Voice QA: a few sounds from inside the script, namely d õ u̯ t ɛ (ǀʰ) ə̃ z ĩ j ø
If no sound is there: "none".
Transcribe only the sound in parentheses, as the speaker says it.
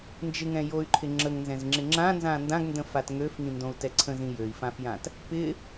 ǀʰ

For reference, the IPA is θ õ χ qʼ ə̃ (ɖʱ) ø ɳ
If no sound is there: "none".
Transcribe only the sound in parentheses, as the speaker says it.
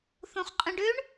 ɖ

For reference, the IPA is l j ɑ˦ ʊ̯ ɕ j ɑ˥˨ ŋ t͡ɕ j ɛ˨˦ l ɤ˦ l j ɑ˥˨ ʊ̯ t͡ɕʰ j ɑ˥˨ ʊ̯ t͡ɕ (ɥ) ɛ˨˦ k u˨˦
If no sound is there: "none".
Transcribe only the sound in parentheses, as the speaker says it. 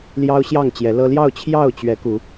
ɥ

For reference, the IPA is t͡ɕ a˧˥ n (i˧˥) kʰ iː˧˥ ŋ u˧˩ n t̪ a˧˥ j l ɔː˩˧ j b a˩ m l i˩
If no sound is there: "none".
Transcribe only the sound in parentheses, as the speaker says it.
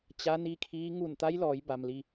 i˧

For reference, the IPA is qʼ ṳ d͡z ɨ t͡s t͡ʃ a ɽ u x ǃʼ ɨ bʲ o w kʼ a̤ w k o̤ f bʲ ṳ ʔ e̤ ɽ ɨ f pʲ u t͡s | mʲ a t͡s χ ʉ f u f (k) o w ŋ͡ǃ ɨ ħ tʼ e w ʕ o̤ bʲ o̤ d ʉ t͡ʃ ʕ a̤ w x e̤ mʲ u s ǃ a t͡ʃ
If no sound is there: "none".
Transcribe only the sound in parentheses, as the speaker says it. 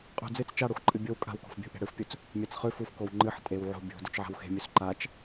k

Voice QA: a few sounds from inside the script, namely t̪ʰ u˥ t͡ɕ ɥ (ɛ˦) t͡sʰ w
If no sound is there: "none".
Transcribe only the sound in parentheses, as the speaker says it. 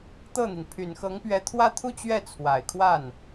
ɛ˥˩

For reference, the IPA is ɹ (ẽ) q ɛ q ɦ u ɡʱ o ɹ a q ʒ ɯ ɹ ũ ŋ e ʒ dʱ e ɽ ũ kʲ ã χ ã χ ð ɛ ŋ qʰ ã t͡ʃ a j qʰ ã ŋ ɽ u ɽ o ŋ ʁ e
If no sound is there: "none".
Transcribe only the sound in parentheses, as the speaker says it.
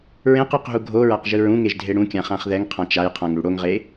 ẽ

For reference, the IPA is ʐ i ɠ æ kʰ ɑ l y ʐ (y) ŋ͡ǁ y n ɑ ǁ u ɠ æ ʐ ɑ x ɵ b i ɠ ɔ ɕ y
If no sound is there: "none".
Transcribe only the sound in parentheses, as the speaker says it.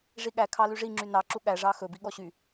i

